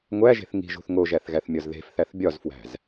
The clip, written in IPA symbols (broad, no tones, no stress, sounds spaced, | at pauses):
ŋʷ æ ʒ e̤ θ ŋ i̤ ʒ ṳ θ ŋ o ʒ æ θ ɣ æ θ mʲ ɒ z ð e̤ f θ æ θ bʲ ɒ z f w æ̤ z